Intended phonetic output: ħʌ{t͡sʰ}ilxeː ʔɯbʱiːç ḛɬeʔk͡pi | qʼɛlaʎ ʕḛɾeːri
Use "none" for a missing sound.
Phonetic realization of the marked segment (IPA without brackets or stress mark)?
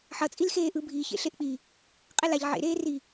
t͡sʼ